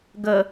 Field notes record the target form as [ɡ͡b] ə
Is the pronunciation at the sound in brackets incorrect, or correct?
incorrect